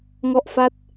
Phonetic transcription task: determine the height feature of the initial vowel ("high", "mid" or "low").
mid